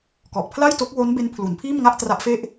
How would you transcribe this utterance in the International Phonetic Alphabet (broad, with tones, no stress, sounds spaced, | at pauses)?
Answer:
k ɔ˨˩ ʔ pʰ l a˥˩ j t o˦˥ k̚ w o˦˥ n b e˦˥ n pʰ l u˩˦ n pʰ iː˥˩ m ŋ a˥˩ ʔ t r a˦˥ ʔ f e˥˩ ʔ